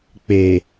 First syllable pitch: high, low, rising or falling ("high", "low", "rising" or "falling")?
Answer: low